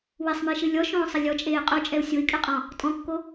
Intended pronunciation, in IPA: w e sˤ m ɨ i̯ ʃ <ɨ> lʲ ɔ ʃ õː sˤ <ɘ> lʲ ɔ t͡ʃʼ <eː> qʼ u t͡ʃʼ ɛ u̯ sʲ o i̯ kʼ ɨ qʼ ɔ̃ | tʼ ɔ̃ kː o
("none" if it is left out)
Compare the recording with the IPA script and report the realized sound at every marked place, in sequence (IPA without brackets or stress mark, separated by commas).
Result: ɨ, ɘ, eː